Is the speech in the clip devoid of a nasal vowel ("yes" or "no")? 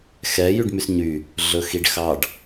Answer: yes